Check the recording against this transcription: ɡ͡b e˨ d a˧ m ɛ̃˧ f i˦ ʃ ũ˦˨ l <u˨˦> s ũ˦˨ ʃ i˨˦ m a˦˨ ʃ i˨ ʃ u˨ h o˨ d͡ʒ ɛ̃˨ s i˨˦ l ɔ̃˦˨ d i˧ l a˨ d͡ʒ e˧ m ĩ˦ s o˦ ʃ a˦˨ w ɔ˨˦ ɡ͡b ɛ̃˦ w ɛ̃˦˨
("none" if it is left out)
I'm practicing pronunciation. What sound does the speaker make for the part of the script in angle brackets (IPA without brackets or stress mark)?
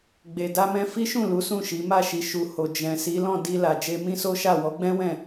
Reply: u˨˦